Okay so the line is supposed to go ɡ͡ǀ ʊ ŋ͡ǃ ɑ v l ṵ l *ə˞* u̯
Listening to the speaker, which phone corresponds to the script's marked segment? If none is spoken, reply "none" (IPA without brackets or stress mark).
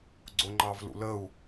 ə